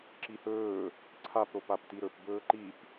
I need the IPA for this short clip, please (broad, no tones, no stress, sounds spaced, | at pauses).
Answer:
ǁ i h ɵː | ǀʰ a p ɾ o p a p t i ɾ ɵ p b ɵː ǃ i p